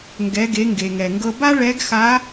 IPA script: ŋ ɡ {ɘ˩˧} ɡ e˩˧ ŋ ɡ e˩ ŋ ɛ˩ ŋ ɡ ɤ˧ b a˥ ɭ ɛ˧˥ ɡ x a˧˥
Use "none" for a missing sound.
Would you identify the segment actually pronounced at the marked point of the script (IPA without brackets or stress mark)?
ɛ˩˧